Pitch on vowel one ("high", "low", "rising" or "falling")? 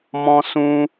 high